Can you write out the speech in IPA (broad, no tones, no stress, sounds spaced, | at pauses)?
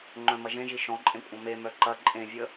ŋ͡ǃ œ̃ m ɐ ʒ ẽ ʒ i ʃ ɔ̃ ǃʼ ẽ kʷʼ ɐ̃ m e m œ ǃ ɐ ǃʼ ẽ vʲ ə